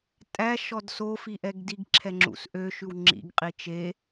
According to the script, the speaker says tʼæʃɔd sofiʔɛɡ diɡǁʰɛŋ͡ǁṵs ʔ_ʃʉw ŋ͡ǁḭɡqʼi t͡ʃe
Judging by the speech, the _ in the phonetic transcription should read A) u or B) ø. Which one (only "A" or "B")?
B